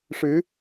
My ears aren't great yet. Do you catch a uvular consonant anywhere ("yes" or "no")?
no